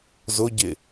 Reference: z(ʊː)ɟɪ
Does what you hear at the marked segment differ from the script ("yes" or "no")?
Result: yes